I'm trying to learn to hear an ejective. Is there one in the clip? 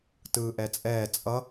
yes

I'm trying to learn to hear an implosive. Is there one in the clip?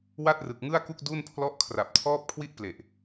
no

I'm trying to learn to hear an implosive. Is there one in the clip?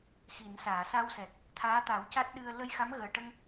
yes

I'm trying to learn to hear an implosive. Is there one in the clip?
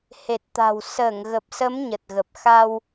no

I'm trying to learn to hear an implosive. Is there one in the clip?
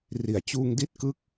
no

